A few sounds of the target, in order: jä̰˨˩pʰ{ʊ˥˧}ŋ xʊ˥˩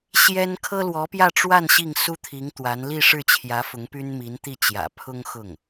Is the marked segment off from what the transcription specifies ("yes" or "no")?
yes